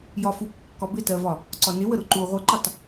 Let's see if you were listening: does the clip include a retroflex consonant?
no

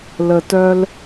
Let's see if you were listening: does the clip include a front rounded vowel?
yes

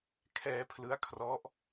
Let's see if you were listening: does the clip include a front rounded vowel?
no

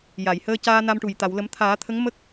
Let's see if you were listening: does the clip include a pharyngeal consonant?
no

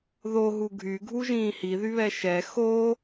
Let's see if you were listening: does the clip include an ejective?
no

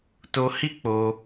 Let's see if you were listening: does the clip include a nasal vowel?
no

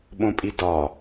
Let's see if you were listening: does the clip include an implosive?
yes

